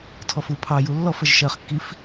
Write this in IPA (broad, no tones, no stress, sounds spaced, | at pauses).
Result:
tʰ ɔ f u pʰ ɑ j u lː ɔ f ə ʒ ʃ ɜ χ kː i f